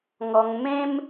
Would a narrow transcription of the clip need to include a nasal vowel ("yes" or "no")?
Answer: yes